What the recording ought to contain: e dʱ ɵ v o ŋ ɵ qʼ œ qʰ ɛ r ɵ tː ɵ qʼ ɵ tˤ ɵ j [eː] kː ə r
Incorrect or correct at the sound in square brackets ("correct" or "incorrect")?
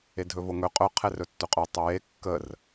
incorrect